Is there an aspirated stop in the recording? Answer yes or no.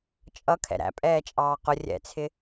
yes